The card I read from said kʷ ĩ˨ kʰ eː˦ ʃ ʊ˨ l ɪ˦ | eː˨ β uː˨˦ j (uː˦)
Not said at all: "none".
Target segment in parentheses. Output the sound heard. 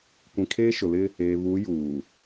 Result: uː˨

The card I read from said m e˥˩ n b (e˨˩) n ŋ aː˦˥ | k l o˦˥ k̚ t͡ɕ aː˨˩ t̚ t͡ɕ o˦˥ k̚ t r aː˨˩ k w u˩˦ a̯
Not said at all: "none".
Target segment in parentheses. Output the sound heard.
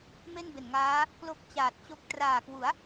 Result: e˨˩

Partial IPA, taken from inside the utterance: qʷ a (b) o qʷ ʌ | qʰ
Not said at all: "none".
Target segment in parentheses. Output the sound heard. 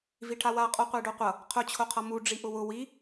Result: ɖ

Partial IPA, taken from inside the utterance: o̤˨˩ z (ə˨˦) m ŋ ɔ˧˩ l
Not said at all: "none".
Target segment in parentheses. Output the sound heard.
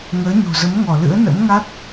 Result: ə˨˦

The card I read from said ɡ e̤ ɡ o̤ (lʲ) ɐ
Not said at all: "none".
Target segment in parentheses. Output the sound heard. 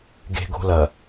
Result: l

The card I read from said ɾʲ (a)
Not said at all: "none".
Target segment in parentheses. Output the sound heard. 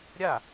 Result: a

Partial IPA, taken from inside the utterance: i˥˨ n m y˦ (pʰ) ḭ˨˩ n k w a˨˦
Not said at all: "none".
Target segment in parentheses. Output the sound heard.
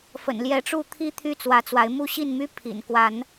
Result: pʰ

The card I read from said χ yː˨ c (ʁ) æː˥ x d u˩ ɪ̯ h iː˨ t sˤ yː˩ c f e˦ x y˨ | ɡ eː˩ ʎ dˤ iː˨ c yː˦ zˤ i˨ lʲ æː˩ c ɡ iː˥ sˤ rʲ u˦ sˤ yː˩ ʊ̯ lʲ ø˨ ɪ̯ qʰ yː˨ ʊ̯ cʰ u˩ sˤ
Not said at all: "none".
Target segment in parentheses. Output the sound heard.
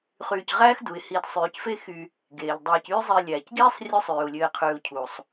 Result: ʁ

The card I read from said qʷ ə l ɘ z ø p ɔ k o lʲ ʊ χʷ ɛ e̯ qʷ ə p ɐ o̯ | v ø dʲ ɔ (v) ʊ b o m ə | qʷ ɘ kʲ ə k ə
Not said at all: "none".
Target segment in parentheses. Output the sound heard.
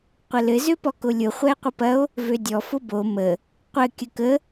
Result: f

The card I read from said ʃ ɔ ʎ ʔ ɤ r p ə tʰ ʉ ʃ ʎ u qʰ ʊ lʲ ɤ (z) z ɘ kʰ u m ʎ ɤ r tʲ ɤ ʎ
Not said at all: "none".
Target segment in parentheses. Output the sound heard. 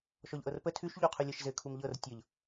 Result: ʃ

